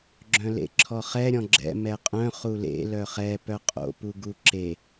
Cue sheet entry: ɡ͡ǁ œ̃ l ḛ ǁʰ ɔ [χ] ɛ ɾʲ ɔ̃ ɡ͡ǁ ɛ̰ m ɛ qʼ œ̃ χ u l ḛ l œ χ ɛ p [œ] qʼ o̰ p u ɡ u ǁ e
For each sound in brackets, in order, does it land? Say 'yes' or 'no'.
yes, yes

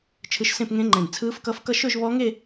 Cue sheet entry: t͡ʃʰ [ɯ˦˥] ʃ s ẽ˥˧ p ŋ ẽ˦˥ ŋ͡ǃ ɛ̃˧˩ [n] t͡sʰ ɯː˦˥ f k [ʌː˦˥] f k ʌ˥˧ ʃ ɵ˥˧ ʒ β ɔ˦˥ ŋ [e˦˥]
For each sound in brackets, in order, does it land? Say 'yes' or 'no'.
yes, yes, no, no

